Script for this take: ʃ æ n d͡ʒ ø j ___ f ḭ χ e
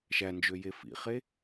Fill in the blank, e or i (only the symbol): e